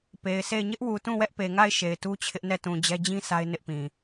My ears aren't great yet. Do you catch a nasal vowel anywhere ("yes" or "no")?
yes